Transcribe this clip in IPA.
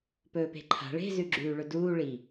p ɵː p e̤ ǃʰ a̤ ɭ e̤ z ʉ ɡ͡ǁ ʉː ɭ ɵ d uː ɭ i

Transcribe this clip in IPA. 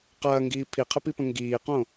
q ɐː ŋ ɡ iː pʰ i qʰ ə p i p ə̃ ŋ ɡ iː q õ

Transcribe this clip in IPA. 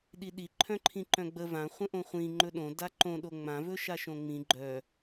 ɗ i ɗ i ǃʰ œ̃ ǃʰ ĩ ǃ œ̃ ɡ͡b ə v ã χʷ ə̃ ʔ õ χʷ ĩ ŋ͡ǃ ɵ ɗ õ d a ǃ õ ɗ o ŋ͡m ã v ɵ ʃ a ʃ õ ŋ͡m ĩ ɡ͡ǃ œ

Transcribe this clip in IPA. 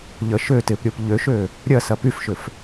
ʎ ə ʃ ø t ɪ p ɾʲ o p ʎ ø ʃ ø | ɾʲ ɐ s ɐ p y f ʃ ʏ f

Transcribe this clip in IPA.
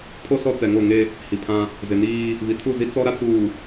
pʰ o˦ s ɔ˦ t͡s ɛ˨ ŋ o˦˨ ŋ e˦ | h i˨ pʰ ã˦ | z ɪ˨ n iː˦ | β i˨ tʰ u˦˨ z i˦ t͡s ɔ˦ ɾ a˦ t͡s uː˨

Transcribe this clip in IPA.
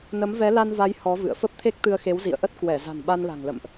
n ə˨˦ m v ɛ˨˦ l a˧ n v a˨˦ j h ɔ˨˦ v ɨ̰˧˨ ə̯ f ə˦˥ p̚ t̪ʰ e˦˥ k̚ t̪ ɨ˧ ə̯ x e˨˦ w z ḭ˧˨ ə̯ ʔ ə˦˥ t̚ k w ɛ˧˩ z a̤˨˩ n ɓ a˧ n l a̤˨˩ ŋ l ə̰˧˨ m ʔ

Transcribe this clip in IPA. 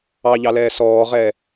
ɑ ʎ ɑ l ɛː s ɔː ʁ ɛː

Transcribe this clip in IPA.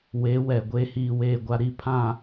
w e˨˦ w ɛ˨ ɡʷ eː˨ h iː˨ w eː˨ ɡʷ a˨ ɾ i˨ pʰ ã˨

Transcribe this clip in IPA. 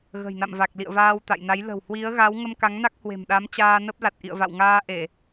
ɣ ə̤˨˩ j n a̰˧˨ m v a˨˩ k̚ l ḭ˧˨ ə̯ v aː˧ w t̪ a̰˧˨ j n a˨˦ j l ə̤˨˩ w h w i˨˦ ə̯ ɣ a˨˦ w ŋ ə˧ m k a˨˦ ŋ n a˦˥ k̚ h w e̤˨˩ m ɗ a˨˦ m t͡ɕ aː˧ n ə˦˥ p̚ l a˨˩ t̚ ʔ ḭ˧˨ ə̯ v a̰˧˨ w ŋ aː˧ ʔ e˧˩˨

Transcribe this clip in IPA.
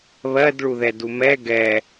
β ɜ d ɭ u ð ɛ d u m ɛ ɡ ɛ

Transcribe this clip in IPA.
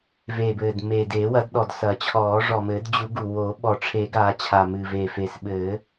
v eː˨˩ b ɘː˨˩ d m e˨˩ d eː˨˩˦ w ɐ˨˩˦ d ɗ ɔ˨˩ d s ɐ˨˩˦ t͡ɕʰ ɔː˨˩˦ ʐ ɔ˨˩ m ɘː˨˩˦ d d͡ʑ u˨˩˦ ɡ u˨˩ w o˨˩˦ ɓ ɔ˨˩ ʈ͡ʂʰ e˨˩˦ ɡ aː˨˩˦ t͡ɕʰ a˨˩ m ɨ˨˩ v e˨˩ f eː˨˩ s ɓ ɘː˨˩˦

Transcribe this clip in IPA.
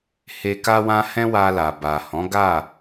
h e˧ k a˦ w ã˦ h ɛ̃˦ w a˧ l a˨ b a˨ h ɔ̃˨˦ ɡ a˦˨

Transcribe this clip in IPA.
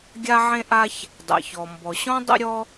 ɡʲ a˥ ʕ ẽ˥ ʔ a˥ ç | dˤ ɛ̰˩ ç ɔ˩ m b ɔ˩ ɕ ɔ̃˥ dˤ ə̰˥ ɾʲ ɔ˥

